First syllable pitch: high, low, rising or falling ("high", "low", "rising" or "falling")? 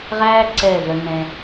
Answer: high